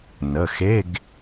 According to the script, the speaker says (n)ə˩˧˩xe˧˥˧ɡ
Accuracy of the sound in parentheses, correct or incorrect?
correct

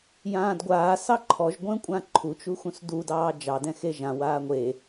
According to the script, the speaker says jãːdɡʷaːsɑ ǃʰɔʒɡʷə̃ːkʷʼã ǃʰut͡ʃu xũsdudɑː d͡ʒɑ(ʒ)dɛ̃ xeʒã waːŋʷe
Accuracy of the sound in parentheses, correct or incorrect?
incorrect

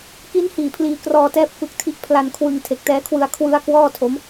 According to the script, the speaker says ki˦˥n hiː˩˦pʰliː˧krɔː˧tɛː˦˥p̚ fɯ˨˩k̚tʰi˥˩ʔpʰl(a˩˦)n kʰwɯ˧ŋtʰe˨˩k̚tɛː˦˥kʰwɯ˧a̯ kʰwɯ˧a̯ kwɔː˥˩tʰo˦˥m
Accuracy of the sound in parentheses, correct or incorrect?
incorrect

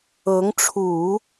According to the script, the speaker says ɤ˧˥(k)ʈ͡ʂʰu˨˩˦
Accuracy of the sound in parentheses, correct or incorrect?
incorrect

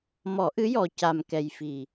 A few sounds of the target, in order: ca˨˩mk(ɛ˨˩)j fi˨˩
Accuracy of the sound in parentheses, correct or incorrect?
correct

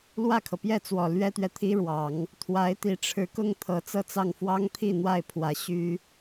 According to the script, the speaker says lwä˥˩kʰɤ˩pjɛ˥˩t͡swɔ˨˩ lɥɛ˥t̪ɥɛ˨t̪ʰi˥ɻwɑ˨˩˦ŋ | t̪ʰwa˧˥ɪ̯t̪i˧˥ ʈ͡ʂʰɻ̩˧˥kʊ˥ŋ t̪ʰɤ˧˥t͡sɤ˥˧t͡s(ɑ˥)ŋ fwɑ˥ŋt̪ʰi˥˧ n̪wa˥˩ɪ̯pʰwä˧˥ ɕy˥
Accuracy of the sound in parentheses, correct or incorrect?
incorrect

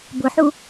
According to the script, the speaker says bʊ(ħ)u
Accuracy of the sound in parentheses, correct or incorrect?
correct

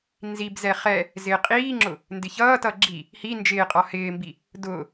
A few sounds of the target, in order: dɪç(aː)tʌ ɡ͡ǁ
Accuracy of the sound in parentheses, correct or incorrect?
incorrect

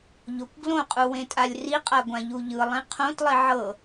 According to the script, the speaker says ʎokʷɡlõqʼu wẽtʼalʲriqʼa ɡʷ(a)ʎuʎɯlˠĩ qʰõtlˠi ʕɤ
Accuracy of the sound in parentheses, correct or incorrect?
incorrect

